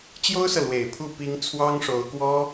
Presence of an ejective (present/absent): absent